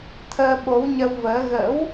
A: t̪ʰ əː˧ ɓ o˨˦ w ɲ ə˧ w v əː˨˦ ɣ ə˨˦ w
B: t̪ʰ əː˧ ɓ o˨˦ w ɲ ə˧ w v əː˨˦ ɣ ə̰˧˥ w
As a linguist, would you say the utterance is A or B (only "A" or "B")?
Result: B